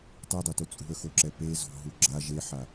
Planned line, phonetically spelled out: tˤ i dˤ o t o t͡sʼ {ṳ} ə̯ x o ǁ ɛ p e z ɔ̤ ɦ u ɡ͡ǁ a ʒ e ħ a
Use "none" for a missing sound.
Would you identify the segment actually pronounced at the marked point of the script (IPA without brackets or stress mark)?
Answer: ṳ